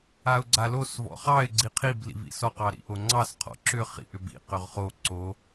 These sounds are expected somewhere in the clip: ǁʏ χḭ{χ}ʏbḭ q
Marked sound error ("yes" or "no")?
yes